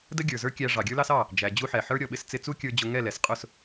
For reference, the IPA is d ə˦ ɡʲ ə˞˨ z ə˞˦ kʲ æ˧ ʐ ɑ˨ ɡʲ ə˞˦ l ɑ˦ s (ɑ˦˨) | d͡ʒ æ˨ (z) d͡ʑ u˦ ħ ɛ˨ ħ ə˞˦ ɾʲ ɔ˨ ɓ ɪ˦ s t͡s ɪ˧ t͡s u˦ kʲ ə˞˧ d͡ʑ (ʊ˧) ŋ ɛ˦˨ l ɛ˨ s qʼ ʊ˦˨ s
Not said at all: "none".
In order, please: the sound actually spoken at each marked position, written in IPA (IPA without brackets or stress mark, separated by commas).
ɑ˦˨, none, ʊ˧